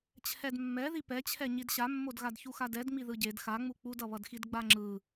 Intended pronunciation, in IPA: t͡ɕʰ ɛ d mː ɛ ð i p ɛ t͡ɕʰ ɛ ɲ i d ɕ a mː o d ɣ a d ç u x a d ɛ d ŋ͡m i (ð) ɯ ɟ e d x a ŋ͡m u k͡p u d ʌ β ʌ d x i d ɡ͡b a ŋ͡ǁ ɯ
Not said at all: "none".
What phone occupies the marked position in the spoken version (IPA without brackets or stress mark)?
ð